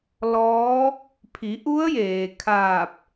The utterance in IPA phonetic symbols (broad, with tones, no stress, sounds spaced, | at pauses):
l ɔː˧˥ | pʰ i˩˧ ʔ u˧˥ ə̯ j eː˩ kʰ aː˧˩ p̚